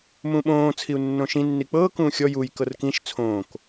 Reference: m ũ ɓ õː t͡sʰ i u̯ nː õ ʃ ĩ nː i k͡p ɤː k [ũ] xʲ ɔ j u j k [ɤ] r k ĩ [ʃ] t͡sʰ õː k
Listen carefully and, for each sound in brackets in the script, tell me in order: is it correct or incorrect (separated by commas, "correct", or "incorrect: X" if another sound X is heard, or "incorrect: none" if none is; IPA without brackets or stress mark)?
incorrect: ũː, correct, correct